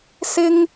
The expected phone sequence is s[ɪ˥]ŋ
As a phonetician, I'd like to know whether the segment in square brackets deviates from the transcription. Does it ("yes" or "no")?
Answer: no